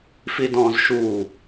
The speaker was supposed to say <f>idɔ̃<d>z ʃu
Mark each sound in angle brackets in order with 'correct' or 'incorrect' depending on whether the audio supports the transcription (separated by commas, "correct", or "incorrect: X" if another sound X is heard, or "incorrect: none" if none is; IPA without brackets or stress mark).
correct, incorrect: none